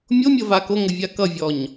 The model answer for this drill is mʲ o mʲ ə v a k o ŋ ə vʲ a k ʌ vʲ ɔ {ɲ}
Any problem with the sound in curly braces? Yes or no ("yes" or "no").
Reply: no